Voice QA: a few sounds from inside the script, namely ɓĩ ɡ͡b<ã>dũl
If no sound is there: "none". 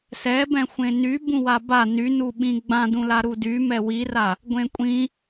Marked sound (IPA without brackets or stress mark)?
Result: ã